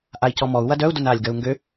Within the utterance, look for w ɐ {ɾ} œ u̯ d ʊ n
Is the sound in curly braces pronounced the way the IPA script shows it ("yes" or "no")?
no